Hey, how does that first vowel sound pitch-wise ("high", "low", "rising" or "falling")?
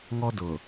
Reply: high